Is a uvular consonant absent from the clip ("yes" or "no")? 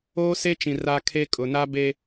yes